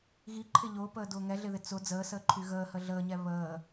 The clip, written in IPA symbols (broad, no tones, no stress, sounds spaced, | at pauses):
ɣ i ǃʰ ɪ ʎ ʊː p əː d ʊː ŋ ɛ ɮ ɪ ð ɪ t͡s ʊ d͡z əː s əː ǃʰ y ɣ əː h ə ɮ əː ɲ ɛ β əː